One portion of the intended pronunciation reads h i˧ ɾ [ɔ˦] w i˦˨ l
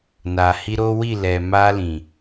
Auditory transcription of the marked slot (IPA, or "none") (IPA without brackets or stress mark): o˦